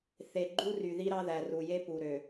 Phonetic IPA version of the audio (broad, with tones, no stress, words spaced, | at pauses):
θe˨ ɡ͡ǃu˦ry˨ði˦ ɾɑ˦ðæ˨ru˨je˦ pu˨ɾø˨